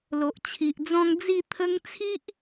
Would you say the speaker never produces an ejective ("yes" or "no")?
yes